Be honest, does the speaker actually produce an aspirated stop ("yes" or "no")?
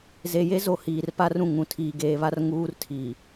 yes